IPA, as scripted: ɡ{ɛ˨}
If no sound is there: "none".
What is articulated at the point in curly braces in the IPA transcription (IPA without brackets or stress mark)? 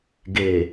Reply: e˨